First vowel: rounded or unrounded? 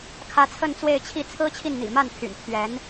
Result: unrounded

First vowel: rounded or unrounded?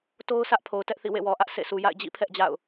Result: rounded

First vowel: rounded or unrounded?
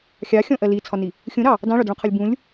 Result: unrounded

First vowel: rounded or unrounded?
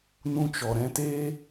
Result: rounded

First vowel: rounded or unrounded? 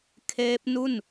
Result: unrounded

